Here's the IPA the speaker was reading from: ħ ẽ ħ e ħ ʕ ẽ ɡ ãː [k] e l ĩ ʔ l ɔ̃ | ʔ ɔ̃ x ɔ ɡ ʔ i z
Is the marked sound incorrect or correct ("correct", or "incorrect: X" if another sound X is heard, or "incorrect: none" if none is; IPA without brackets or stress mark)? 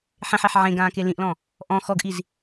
correct